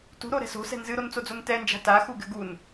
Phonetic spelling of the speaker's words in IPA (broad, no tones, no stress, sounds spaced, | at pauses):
t ṳ ɾ o ɾ ɛ̤ s o̤ s ɛ̤ n z ɨ ɾ o n t͡s o d͡z o n t ɛ n d͡ʒ a̤ t a x u ɡ ɘ ɡ u n